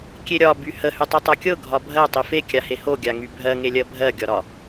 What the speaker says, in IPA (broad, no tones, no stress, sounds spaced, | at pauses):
kʲ e ɾʲ ɒ b y h ə h y tˤ y tˤ a kʲ ɤ ɡʱ ɒ bʱ ɜ tˤ i f e kʲ a h e h o ɡʲ a ŋ y bʱ ɜ ŋ e lʲ ɜ bʱ ɜ ɡʲ ɒ ɾ ɒ